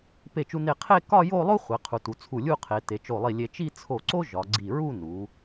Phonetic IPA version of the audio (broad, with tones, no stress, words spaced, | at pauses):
pe˧˩t͡ʃu˧ne˧˩ qʰe˥˧ kɒ˥˧jo˥˧lˠo˥ χʷe˩˧qʰu˩˧tu˩˧ t͡sʰu˧˩lʲu˥˧ qʰe˩˧ te˩˧t͡ʃo˧˩lˠi˧˩lʲe˧ t͡ʃi˥˧t͡sʰo˧˩ǀo˥ ʒɒ˩˧ɡ͡ǀi˧˩ ɹu˥˧nu˩˧